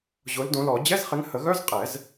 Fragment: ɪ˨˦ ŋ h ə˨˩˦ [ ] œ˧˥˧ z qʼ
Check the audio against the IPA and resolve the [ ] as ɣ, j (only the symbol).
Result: ɣ